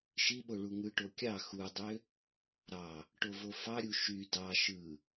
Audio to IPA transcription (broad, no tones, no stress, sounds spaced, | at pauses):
ʃ i ɓ o ɭ u ŋ ɯ ʈ o kʲ ɑ x u dˤ ø | ɾ ɑ | ʈ o v o f ɑ ɾʲ u ʃ y d ɑ ʃ ɯ